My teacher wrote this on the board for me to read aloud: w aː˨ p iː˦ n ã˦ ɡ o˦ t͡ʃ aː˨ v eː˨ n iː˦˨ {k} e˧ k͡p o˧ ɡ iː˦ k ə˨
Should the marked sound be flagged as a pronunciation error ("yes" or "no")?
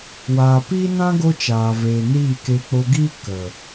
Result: no